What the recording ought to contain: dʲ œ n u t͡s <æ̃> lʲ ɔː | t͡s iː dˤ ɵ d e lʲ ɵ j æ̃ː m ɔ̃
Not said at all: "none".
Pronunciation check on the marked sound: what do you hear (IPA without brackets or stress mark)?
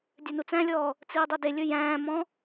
æ̃